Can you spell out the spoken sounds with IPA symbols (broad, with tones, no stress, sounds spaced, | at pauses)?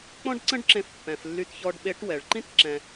k͡p ɔ̃˥ ɖ ǀ ə̃˥ ɖ ǁ ẽ˧ f pː ɛ̃˩ f lː y˧ t ç ɔ˧ ɖ ɓ e˧˥ ʈ w ɛ˩ ɭ ǃ ĩ˥ t ǁ ɛ̃˧